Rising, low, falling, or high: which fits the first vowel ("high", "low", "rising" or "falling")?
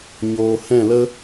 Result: low